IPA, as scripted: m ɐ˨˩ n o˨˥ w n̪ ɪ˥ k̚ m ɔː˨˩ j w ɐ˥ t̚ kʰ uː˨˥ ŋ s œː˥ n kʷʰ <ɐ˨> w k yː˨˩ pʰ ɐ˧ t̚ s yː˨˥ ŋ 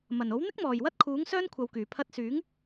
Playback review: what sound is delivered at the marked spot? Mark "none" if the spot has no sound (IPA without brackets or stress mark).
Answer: ɐ˨